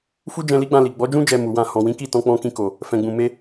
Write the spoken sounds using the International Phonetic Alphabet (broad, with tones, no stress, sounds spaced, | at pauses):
f u˦ d͡ʒ ɛ̃˧ l i˦ ɡ͡b ã˧ l i˨ ɡ͡b ɔ˨˦ d͡ʒ ũ˦ d͡ʒ ɛ˧ m u˨ w ã˧ h ɔ̃˨ w ĩ˨˦ k i˦˨ t ɔ̃˧ k͡p ɔ̃˧ k ĩ˧ k o˨ | f ɛ̃˨ ɡ͡b ũ˨ m e˧